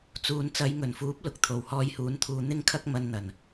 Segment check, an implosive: absent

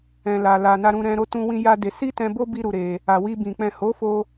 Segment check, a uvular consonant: absent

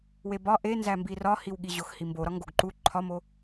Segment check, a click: present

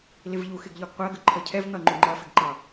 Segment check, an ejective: absent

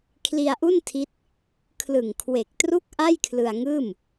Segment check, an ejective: absent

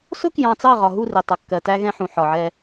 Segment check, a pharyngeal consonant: present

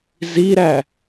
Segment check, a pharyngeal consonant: absent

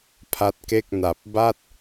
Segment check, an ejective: absent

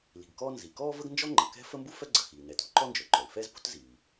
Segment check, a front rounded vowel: present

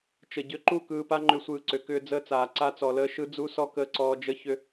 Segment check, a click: present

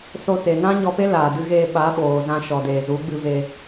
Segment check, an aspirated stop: absent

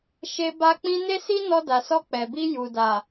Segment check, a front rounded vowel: absent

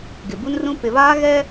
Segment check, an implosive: absent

